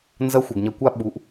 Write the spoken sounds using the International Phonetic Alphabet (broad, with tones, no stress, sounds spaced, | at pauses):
n z ɐ˧˥ xʷ ɛ˩ ɡ ɲ ɐ˧ kʷ a˥ ɓ u˩˧ ʔ